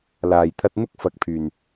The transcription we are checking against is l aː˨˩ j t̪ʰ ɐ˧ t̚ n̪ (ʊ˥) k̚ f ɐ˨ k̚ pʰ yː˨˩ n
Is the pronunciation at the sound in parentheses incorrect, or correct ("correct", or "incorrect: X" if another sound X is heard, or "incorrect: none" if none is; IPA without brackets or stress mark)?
correct